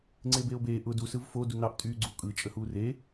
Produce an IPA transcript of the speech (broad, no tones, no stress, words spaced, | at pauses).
ŋ͡ǀeːbeːo̯beː ʔʊ du sɯvfo dunɑʔ tʼyːɡ͡ǀuo̯kʼɯ t͡ʃʼəhuːre